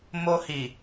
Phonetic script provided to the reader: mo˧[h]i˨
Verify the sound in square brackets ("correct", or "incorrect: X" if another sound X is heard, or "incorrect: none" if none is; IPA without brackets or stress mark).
correct